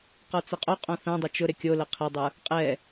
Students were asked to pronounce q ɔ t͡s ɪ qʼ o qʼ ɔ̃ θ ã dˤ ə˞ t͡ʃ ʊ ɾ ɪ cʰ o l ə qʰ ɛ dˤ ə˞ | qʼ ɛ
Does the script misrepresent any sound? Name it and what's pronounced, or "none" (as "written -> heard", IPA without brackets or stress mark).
cʰ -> kʲ